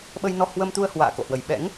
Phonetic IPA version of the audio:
ɓ ə˧ j n ɔ˧ h w ə˧ m t̪ u˧ ə̯ h w a̰ː˧˨ k o̰˧˨ h w ə˨˩ j ɓ ɛ̰˧˥ ŋ

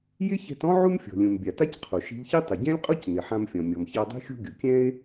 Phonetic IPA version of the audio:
j ɪ˥ ç ɛ̤˧ t ɔ̃˥ ʕ u˥ m fʲ ɔ̤˩ lʲ ũ˩ m bʲ a˩ t a˥ c qʰ o˩ ʃ i̤˧ ʎ ç i˥ tˤ ɪ˩ ɟ ɛ̃˥ lʲ qʼ o˥ c n ɪ˩ ħ ã˧ m fʲ ɔ̃˩ mʲ ɔ˩ m ç a˧ dˤ i̤˥ xʲ o̤˥ ɡʲ ʊ˩ kʲ ɛ̃˥ e̯

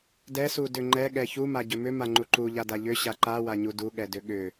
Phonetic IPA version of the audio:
d ɛ s u d ʏ ŋ͡ǃ ɛ ɠ ɛ ç u m a ɟ ʏ m ʏ m a ŋ͡ǃ u ǃ u ʎ a d a ʎ ʏ ɕ a ǃ a w a ɲ u d u ɠ ɛ d ʏ ɠ ʏ

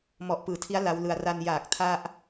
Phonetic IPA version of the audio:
m ɔ˨˩ ʔ p ɯː˩˦ tʰ i˦˥ a̯ l a˦˥ w l ɯ˧ a̯ r a˧ n j aː˨˩ k̚ tʰ a˥˩ ʔ

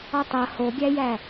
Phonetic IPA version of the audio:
ɔ tˤ ɐ h o ɡʲ æ j æ

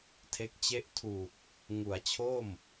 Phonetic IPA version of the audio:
tʰ e˦˥ k̚ t͡ɕ e˥˩ ʔ tʰ u˨˩ k̚ | ŋ u˩˦ a̯ t͡ɕʰ o˥˩ m

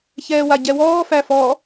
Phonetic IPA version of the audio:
ç ɛː w a ɟ ɛ w ɔː f æ f ɔ

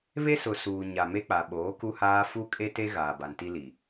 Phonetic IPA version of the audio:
β e˦ s ʊ˨ s uː˨ ɲ a˨ m e˦ k͡p a˨ ɓ oː˨˦ k u˦ h aː˦ f u˦ kʼ e˦ t e˦ ɣ aː˨ b a˨ n t i˦ l i˨

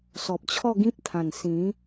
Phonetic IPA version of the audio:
s ɔ˨ p̚ t͡ɕʰ ɔ˥˧ ɡ ĩ˦ p̚ t̪ʰ ã˨˩ n s ĩ˨˦

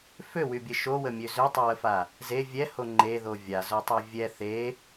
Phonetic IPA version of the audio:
f ø w y bʲ ə ʃ o w ə mʲ ø z ø tˤ y w ə f a | z e vʲ ɛ h o ŋ͡ǃ e ð o vʲ a z o tˤ ø vʲ ɛ θ e

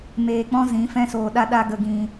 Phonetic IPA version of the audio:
m eː˧ k͡p ɔ̃˦ z ĩ˨˦ f ɛ̃˦ s oː˧ ɗ a˦ ɗ a˦ ɡ ə˧ ɡ ĩ˧

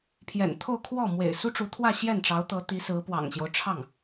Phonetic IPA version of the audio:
pʰ j ɛ̰˨˩ n t̪ʰ o˥˧ ʊ̯ kʰ w ɔ˥˩ m w ḛ˨˩ ɪ̯ s u˥ ʈ͡ʂ u˧˥ t̪ʰ w ä˥˧ ɕ j ɛ˥˩ n ʈ͡ʂ ɑ˧˥ ʊ̯ t̪ ɤ˧˥ t̪ i˧˥ s ɹ̩˧˥ p w ɑ̰˨˩ ŋ ɕ j o˦ ʊ̯ ʈ͡ʂʰ ɑ˥˩ ŋ

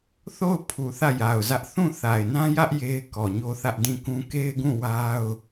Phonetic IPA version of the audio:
θ o˦˨ ʊ̯ pʰ u˨ θ ä˦˨ j a˨ ʊ̯ z ä˦ ʔ θ ũ˦˨ θ a˨ ɪ̯ n ã˦ j ä˦ ʔ j e˦ ɪ̯ k ɔ˨ ɲ o˦ θ ä˦ ʔ d ĩ˦˨ k ũ˦ k e˦ ɪ̯ ɡ ũ˦˨ w a˦ ʊ̯

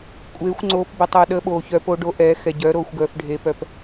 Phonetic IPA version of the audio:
kʷʼ eː˨˦ xʷ ŋ͡ǀ oː˨˦ p b ə˨ tˤ œ˨ ɗ əː˨˦ ɓ oː˨ ç œ˨˦ p o˨˦ ɖ o˨˦ ʔ ɛː˨˦ x ɛ˨ ɟ œː˨˦ ɾ oː˨ xʷ ɡ œː˨ f ɖʱ eː˨ p œ˨ p

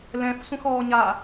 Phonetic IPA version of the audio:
l ɛ̃ f sʷ ə̃ x ɔː ɲ a

